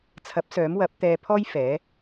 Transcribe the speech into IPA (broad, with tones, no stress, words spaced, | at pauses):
t͡sʰɐ˨˥p̚ sœː˨˥mwɐ˨˥p̚ t̪ɛː˧pʰɔː˥j fɛː˨˥